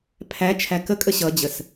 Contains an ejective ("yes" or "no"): yes